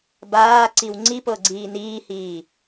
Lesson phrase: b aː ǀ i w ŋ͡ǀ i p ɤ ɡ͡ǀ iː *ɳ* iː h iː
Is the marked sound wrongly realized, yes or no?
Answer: yes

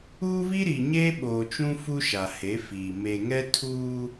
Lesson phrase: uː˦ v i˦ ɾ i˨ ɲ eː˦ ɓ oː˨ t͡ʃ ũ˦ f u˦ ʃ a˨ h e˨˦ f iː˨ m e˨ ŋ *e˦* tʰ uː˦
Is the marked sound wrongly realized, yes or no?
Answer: yes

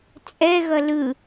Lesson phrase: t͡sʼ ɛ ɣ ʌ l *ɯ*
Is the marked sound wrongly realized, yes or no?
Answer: no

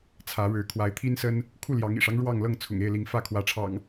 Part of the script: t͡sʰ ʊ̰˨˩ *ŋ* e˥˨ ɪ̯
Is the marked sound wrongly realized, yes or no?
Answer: no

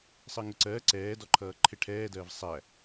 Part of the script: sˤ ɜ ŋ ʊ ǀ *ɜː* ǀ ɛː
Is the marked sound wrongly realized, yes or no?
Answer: no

